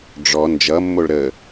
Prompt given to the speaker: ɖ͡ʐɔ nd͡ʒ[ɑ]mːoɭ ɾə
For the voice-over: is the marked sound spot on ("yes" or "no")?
no